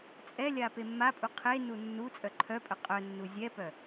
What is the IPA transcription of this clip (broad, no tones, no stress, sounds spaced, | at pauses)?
t͡sʼ ɛ lʲ a p e mː a pʼ u qʰ e n u nː u t͡sʼ œ ǃʰ œ pʼ œ qʼ œ nː u zʲ ɛ p œ